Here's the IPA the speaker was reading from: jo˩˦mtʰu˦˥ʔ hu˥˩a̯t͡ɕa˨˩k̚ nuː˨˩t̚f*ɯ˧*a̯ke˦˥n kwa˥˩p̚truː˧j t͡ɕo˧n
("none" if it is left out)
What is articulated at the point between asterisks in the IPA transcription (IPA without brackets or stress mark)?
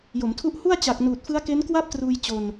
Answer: ɯ˦˥